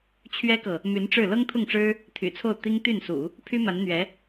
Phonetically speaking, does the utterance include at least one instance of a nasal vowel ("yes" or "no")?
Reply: no